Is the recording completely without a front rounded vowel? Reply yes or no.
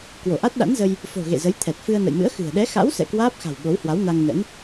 yes